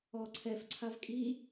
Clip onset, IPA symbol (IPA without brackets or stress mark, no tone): ɔ